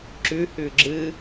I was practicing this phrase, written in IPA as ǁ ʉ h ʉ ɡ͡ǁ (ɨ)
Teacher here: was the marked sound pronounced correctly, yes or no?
yes